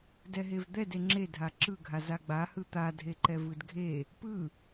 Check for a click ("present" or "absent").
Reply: present